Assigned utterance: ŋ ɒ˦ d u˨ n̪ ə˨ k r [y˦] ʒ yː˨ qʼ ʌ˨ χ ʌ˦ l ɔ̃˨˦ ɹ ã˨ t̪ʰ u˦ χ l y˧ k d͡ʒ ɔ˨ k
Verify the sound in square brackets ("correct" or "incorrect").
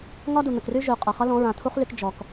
correct